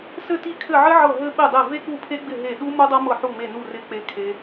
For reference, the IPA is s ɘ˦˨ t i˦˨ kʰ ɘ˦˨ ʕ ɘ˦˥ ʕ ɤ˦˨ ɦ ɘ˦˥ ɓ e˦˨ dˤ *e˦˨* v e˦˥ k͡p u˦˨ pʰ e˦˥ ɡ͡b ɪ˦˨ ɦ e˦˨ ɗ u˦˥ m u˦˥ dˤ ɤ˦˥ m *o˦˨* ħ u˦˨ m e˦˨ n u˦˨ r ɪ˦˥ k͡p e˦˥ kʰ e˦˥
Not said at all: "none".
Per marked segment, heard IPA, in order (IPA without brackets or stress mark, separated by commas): e˦˨, ɤ˦˨